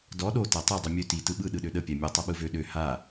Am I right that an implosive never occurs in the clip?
no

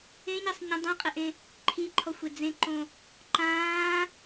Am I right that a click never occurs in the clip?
no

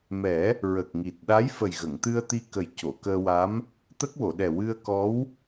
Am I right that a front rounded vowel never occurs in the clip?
yes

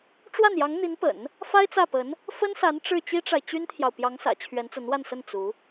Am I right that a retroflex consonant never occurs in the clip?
no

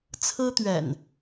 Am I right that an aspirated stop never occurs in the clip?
no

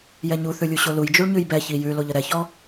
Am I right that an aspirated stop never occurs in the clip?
yes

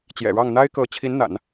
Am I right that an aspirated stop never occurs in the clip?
no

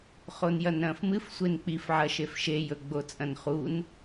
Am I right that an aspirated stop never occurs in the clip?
yes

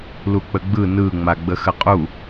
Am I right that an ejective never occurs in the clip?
no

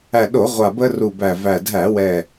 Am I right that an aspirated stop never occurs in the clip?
yes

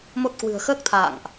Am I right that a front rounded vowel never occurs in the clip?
yes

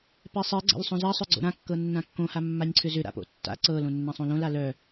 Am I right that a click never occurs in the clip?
no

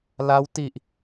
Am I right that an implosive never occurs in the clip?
yes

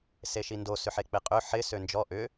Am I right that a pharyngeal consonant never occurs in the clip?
no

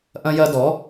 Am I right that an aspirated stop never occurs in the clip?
yes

